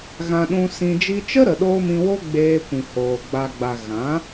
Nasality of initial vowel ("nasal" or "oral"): nasal